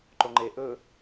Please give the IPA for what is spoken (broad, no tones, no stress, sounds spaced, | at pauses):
ǃ o ŋ͡ǃ e ʔ ɵ